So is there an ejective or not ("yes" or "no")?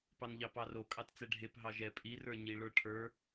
yes